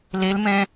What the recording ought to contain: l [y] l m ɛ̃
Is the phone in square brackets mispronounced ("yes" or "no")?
yes